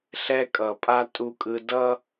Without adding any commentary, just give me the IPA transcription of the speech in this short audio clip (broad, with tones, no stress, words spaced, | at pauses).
ɬɛ˧kʼʌ˨pʼa˧ tʼu˧kʼɯ˧dʌ˦